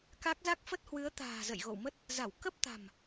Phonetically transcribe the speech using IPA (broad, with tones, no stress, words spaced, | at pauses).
ka˦˥k̚ za˦˥k̚fə˦˥t̚hwɨ˨˦ə̯ t̪a̤ː˨˩zə̰˧˨jɣo̰˧˨wmə˦˥t̚ | za˧˩wkə˦˥p̚t̪a̤˨˩m